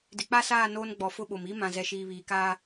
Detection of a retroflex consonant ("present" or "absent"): absent